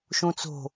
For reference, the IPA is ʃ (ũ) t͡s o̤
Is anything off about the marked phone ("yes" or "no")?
no